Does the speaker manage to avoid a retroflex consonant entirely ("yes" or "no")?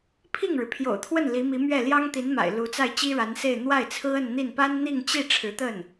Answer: no